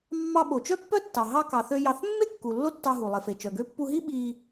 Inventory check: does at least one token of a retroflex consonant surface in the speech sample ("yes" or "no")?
no